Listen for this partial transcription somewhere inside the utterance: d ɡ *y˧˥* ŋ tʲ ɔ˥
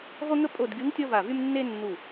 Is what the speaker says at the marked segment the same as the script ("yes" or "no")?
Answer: yes